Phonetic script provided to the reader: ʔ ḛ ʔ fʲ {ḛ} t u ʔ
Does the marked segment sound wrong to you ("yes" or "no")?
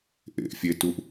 yes